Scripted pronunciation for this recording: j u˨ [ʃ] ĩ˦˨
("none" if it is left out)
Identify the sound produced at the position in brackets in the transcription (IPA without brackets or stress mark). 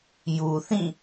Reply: θ